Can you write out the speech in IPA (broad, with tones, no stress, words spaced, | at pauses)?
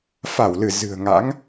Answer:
fa˧˩wlɨ˧˩ zɨ̤˨˩ə̯ŋa̰˧˥ŋ